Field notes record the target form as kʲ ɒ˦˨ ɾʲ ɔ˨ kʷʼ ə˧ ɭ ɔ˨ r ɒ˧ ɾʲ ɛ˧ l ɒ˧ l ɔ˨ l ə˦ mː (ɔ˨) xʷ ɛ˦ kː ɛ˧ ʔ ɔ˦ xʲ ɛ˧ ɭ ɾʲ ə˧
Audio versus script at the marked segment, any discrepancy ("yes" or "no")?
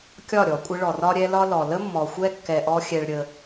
no